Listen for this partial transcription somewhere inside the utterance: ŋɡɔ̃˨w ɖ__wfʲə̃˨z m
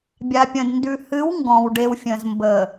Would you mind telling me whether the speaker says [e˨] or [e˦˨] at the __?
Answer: e˨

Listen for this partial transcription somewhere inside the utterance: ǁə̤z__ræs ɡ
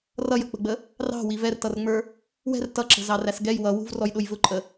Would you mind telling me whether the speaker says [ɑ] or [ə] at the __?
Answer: ɑ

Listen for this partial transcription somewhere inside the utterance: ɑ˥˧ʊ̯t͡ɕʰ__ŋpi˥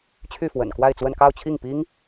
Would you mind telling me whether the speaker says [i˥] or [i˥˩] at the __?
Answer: i˥˩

